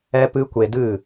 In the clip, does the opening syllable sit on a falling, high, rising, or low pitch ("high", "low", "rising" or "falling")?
high